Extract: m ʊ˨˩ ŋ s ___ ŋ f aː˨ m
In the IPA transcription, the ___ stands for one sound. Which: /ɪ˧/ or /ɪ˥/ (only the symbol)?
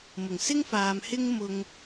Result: ɪ˥